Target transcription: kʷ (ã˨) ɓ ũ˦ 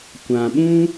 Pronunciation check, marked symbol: correct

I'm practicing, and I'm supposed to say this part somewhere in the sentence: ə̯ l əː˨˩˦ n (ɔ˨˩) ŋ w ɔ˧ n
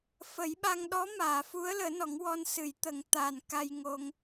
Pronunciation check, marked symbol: incorrect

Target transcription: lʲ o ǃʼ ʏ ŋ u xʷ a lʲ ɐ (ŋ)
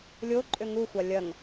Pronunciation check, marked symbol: correct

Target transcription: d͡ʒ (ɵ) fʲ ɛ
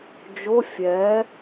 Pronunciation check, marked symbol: incorrect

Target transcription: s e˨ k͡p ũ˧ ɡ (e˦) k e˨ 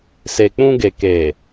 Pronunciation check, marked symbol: incorrect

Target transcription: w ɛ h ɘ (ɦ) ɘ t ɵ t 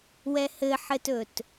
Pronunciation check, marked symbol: incorrect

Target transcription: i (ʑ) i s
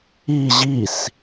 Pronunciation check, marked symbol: correct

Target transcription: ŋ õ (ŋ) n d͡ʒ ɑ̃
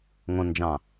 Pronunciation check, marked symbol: incorrect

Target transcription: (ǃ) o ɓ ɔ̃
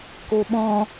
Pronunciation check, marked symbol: incorrect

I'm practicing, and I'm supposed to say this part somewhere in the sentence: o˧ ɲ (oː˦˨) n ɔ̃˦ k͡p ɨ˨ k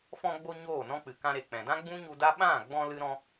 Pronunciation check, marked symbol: correct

